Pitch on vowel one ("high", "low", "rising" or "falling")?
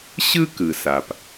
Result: high